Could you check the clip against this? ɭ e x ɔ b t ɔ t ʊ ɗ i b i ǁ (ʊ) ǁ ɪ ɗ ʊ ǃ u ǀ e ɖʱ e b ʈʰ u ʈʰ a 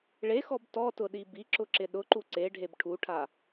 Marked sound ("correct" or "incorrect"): correct